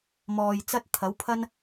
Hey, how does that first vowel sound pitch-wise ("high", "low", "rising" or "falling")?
low